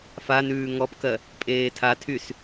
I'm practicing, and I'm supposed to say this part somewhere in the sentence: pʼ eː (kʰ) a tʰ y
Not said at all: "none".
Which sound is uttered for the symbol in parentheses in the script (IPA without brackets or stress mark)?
tʰ